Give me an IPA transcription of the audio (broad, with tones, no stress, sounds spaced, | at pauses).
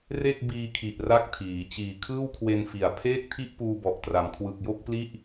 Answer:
r e˥˩ k̚ b iː˧ kʰ i˨˩ ʔ r a˥˩ k̚ tʰ iː˩˦ t͡ɕ iː˨˩ kʰ ɯː˥˩ w kʰ w e˧ n f i˨˩ a̯ pʰ eː˥˩ k̚ tʰ i˥˩ ʔ p uː˧ b ɔ˨˩ ʔ t r a˩˦ m kʰ w ɯ˨˩ k̚ j o˥˩ k̚ p l i˥˩ ʔ